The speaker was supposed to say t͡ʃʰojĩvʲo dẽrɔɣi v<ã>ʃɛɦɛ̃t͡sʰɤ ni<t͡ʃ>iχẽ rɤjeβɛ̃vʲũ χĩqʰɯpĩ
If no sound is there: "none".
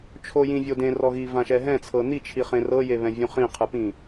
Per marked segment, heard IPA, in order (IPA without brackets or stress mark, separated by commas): ã, t͡ʃʰ